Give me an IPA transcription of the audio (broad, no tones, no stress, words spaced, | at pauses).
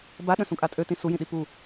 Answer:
baɗə̃sũkʼa tʼøtĩ sujĩɗi pu